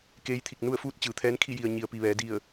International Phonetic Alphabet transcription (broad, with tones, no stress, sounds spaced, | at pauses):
k eː˧˥ j t̪ʰ i˧˩ k̚ n u˥˨ ə̯ f uː˥˨ t̚ t͡ɕ ɯː˩˧ t̪ʰ ɛː˧˥ n kʰ i˥˨ j i˩ ə̯ ɲ i˩ ə̯ p i˩ ʋ ɛː˩˧ d i˧˩ ə̯